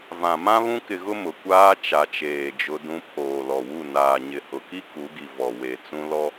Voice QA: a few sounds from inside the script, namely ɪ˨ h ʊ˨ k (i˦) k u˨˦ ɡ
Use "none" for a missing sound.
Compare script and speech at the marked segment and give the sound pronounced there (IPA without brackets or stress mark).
i˦